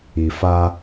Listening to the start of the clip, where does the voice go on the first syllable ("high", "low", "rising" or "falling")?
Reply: low